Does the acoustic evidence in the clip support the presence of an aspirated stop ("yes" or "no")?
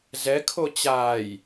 yes